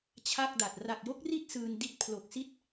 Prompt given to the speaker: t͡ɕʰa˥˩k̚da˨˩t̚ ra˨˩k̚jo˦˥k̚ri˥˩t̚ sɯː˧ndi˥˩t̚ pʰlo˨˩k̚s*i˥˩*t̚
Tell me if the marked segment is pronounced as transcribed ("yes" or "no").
yes